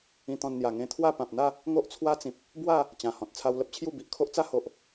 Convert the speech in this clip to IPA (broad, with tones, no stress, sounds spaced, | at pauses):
ĩ˧ t̪ ɔ̃˧ n n̪ j a˨˩ ŋ ẽ˧ t̪ʰ w a˥˧ p ã˨ p̚ n̪ a˥˧ | ŋ o˦ ʔ t͡sʰ w a˦ t͡s ĩ˨ p̚ | b w a˥˧ | t͡ɕ ã˨˩ h ɔ̃˨ t̚ t͡sʰ a˧ w l ə˦ p̚ t͡ɕʰ j u˥˧ b i˨ ʔ kʰ o˦ ʔ t͡s a˦ h o˨ ʔ